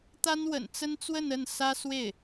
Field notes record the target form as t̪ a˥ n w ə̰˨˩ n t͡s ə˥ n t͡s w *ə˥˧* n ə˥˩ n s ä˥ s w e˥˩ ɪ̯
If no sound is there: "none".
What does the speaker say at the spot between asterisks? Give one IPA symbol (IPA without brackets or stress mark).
ə˥˧